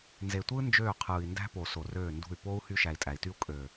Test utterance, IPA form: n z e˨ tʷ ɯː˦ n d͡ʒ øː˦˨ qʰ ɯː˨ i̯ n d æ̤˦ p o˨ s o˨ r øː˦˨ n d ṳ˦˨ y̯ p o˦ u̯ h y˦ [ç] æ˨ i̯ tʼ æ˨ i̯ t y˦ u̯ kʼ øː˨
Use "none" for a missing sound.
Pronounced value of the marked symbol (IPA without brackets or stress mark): ʃ